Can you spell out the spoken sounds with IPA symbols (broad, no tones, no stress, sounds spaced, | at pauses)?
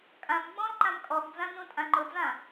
kʼ ã m ɡ͡b ɔ̃ l ǃ ã m kʼ ɔ ɡ d͡z ã n ũ tʼ ã ŋ͡ǃ ʊ d͡z ã